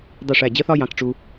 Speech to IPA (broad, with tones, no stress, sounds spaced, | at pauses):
dˤ i˥˩ ʂ æ˥˩ d͡ʑ ɜ˥ θ ɒ˥ j ɑ̃˧ k ʈ͡ʂ u˧